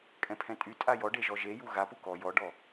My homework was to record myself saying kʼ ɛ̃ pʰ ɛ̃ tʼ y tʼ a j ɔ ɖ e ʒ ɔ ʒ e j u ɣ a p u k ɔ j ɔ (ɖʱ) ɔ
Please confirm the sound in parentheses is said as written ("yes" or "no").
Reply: no